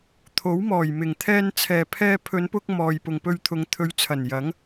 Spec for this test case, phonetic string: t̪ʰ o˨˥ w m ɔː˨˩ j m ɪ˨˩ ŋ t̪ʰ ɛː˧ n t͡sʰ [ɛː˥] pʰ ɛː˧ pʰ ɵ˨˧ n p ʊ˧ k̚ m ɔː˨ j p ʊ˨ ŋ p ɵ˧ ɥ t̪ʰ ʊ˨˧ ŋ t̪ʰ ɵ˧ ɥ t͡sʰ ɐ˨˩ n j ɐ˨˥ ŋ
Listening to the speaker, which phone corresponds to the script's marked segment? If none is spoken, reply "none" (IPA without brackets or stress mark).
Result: ɛː˨